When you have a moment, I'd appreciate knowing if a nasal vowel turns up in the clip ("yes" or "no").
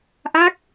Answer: no